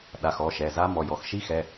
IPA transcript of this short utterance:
ɗ a˩˧˩ x ɔ˩˧˩ ʃ ɛ˩˧˩ z a˦˥ m ɔ˩˧˩ j ɔ˩˧˩ x ʃ i˦˥ x ɛ˩˧˩

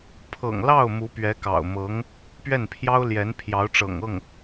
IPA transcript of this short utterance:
pʰ ɤ̰˨˩ ŋ l ɑ˥˩ ʊ̯ m u˧˥ p ɥ ɛ˧˥ k ɑ̰˨˩ ʊ̯ m ɤ˧˥ ŋ | p ɥ ɛ˥˩ n pʰ j ɑ˥ ʊ̯ l j ɛ˧˥ n pʰ j ɑ˧˥ ʊ̯ ʈ͡ʂ ɤ̰˨˩ ŋ ɤ˥˩ ŋ

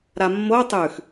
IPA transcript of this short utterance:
ɾ a mː o tˤ ʉ x

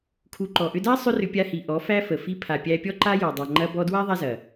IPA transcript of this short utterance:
kʰ u˧ ǃ ɔ˨ ʔ ʏ˧ d a˦ sˤ ʏ˦ r ʏ˧ pʲ a˧ h i˨ ʔ ɔ˨˦ f æ˦ f ə˨ f i˧ pʰ a˨ pʲ æ˧ pʲ ɔ˦ ǃ a˦ j ɔ˨ dˤ a˨ ŋ͡ǃ ɐ˧ b ɔ˧ d w a˦ ðˤ æ˦ z ɐ˨

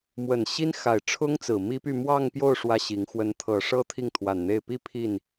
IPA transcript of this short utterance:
m w ə˨˩ n ɕ i˥ n x a˨˩ ɪ̯ ʈ͡ʂʰ ʊ˥ ŋ t͡s ɹ̩˨˩ m i˥ p y˥˧ m w ɑ˥˧ ŋ p j o˥˩ ʊ̯ ʂ w ä˥ ɕ i˧˥ ŋ x w ə˧˥ n t̪ʰ ɤ˨˩ ʂ ɤ˥ t̪ʰ i˥˩ ŋ t̪ʰ w a˨˩ n n̪ e˥˩ ɪ̯ p i˥ pʰ i˥˩ n

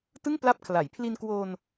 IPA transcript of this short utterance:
t ɯ˥˩ ŋ p l a˦˥ p̚ kʰ l a˩˦ j pʰ l i˧ n k w o˧ n

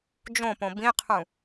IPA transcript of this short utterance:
d͡ʒ õ p õ b ĩ qʰ ũ

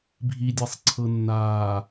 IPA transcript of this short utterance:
bʱ i dʲ a sˤ ǀʰ ɤ nː aː

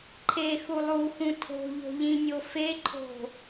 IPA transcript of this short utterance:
ǃʰ e x u lˠ u x ũ tʰ o̤ ʎ o̤ ʎ ĩ nʲ o f e ǃʰ o̤

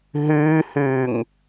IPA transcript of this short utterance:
ɦ ʉː h ʉː ŋ

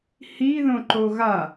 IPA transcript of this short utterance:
h i ð õ ǃ o ɣ a

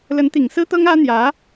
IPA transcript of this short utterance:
l ə˧˥ n t̪ i˨˩ ŋ s ɹ̩˥ t̪ ɤ˥ ŋ ä˥ n̪ j ä˧˥

